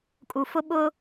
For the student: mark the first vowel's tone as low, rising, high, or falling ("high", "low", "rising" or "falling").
low